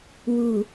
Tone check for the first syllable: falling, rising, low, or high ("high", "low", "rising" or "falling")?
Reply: low